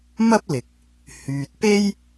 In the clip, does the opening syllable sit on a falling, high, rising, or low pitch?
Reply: high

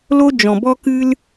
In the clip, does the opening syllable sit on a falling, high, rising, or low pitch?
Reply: high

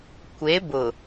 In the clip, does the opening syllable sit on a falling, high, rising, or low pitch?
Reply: rising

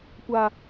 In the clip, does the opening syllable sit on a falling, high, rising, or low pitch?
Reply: low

